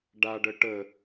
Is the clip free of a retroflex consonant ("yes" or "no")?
no